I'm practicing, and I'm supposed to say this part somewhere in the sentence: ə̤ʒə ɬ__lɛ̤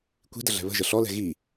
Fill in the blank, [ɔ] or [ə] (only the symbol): ɔ